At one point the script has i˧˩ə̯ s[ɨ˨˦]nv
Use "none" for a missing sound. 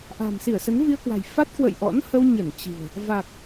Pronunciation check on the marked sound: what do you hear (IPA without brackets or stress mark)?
ə˨˦